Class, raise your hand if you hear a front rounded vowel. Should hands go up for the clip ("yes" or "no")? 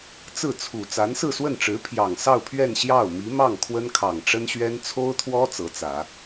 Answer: no